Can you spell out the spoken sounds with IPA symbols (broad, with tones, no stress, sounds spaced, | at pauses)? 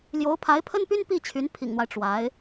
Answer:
l j o˧˥ ʊ̯ pʰ a˧˥ ɪ̯ pʰ ə˥ n p y˥ n p i˥˩ t͡ɕʰ y˧˥ n pʰ ḭ˨˩ ŋ n̪ w a˦ ɪ̯ ʈ͡ʂ w a˧˥ ɪ̯